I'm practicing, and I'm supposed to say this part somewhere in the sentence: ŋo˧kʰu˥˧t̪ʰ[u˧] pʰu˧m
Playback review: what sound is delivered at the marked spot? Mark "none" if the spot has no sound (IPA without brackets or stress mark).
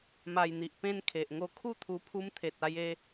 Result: u˧